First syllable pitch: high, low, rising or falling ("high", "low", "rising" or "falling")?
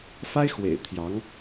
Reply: high